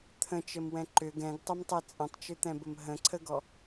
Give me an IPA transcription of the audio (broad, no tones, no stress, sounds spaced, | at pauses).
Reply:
t̪ʰ ə̃ t͡ʃ ə m w ɛ̃ ǃ ʏ ɡ ɛ̃ ɡ tˤ ə m tˤ ɛ t͡sʼ ə̃ tˤ t͡ʃ ʏ t̪ ɛ̃ b ə m ɦ ə̃ ǀʰ ə ɡ ɔ